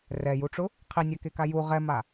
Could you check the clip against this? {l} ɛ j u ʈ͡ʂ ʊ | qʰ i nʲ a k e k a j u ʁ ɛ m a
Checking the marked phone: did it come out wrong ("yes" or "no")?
yes